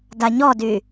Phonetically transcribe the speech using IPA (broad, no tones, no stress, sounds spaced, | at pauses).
d a ɲ ɔ d y